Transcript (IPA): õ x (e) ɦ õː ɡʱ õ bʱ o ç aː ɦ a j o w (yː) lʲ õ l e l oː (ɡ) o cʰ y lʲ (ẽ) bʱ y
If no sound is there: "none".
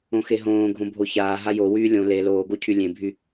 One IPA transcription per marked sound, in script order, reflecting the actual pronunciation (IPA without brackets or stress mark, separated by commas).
e, yː, ɡ, ẽ